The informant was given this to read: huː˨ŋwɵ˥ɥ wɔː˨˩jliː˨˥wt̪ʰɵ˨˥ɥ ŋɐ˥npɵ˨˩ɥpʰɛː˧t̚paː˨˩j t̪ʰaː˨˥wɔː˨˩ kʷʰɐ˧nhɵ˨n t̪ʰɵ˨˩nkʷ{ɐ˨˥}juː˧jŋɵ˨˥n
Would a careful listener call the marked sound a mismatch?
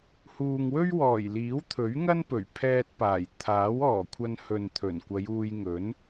yes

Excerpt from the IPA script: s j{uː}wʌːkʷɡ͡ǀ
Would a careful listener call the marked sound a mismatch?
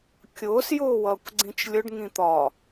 yes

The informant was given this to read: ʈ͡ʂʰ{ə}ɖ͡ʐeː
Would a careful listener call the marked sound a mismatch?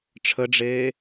no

